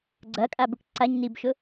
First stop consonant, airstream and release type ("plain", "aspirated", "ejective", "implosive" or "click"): click